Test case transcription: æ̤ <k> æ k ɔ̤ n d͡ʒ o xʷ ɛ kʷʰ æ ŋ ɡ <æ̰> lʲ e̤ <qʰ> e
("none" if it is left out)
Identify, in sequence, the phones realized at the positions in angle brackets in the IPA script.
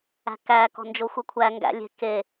k, æ̰, k

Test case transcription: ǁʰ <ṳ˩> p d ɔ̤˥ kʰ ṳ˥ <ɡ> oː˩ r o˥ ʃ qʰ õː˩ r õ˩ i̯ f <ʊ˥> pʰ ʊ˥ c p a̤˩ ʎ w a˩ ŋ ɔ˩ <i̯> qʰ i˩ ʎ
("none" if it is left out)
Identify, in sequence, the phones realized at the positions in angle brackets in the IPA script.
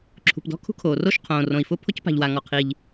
ṳ˩, kʰ, ʊ˥, none

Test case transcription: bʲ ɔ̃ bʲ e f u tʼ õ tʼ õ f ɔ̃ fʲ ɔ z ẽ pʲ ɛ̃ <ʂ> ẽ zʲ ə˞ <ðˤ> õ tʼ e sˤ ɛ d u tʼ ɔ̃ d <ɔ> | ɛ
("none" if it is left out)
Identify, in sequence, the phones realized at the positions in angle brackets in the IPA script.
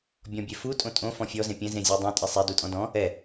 z, dˤ, ɔ̃

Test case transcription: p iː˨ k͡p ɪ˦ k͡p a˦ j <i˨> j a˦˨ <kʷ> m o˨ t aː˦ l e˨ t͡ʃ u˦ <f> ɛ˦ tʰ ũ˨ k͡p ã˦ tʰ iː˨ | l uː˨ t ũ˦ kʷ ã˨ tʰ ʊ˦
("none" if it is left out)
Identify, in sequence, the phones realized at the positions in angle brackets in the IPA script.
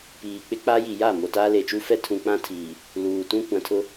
i˨, none, f

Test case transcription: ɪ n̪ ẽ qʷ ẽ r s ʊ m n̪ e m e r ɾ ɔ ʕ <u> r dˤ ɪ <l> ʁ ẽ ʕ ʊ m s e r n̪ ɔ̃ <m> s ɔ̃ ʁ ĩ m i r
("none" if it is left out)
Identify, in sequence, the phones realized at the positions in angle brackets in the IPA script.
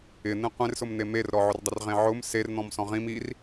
ʊ, r, m

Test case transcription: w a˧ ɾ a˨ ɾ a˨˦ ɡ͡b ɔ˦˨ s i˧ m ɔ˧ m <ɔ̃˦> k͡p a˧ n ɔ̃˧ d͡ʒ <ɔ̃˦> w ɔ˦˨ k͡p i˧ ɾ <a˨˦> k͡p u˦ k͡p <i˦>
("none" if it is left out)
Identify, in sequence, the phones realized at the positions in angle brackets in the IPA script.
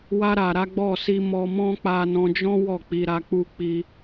ɔ̃˦, ɔ̃˦, a˧, i˦

